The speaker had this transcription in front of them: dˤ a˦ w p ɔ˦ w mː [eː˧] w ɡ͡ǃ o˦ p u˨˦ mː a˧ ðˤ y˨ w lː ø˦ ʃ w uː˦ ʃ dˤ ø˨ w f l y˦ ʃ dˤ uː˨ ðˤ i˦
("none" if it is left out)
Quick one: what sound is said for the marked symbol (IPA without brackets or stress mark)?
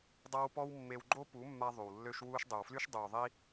e˧